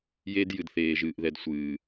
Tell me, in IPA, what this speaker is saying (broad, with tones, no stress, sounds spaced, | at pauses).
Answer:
j e˦ d j ɨ˨ d θ eː˨ ʒ ɨː˨ ʔ ð ɛ˨ d sʷ ɨː˨